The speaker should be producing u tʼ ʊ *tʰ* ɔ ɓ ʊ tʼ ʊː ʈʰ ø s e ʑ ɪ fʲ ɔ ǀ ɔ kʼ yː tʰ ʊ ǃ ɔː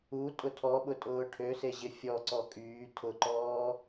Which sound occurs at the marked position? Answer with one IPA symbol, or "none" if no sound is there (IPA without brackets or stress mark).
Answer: tʰ